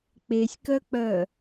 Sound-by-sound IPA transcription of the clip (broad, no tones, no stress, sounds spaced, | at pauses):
k͡p e sʲ k œ k͡p œ